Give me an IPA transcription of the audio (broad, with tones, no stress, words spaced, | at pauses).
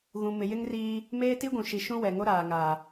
ɣũ˨mɪ˨jɪ˦ŋ riː˦ | meː˦ti˦ɡʷũ˨ʃi˨ ʃũ˦wɛ˨ŋo˦ ɾaː˨ŋa˨